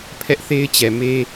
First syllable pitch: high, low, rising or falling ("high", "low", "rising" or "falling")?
high